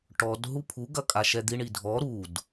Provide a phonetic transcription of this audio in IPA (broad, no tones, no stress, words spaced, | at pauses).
ʈɔd ɦupʰuɡɐ kʼaʃɛd̪iɳi dʱɔ ɾud